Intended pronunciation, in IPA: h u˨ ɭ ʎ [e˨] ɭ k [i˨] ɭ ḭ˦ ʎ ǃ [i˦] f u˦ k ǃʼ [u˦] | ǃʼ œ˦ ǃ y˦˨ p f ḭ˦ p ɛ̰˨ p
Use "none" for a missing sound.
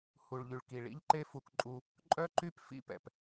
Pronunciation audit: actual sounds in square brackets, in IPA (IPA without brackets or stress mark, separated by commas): y˨, i˨, e˦, u˦